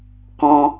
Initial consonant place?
velar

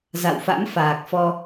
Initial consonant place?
alveolar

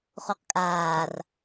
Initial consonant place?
uvular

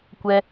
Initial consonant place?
velar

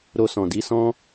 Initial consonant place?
alveolar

